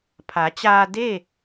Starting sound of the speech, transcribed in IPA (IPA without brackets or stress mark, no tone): pʰ